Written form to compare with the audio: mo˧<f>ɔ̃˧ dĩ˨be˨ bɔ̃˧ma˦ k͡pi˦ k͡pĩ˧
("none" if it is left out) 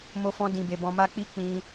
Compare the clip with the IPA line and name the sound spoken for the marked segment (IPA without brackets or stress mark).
f